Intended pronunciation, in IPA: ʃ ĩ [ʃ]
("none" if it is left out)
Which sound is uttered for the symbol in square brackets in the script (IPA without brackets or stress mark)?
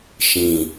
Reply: none